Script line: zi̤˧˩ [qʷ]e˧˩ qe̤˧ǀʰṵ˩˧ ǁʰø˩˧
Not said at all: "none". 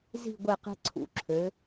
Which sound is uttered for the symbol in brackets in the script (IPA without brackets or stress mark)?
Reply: ɡʷ